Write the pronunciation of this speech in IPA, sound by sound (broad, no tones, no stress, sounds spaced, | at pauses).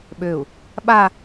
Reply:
ɓ ø u̯ | ɓ a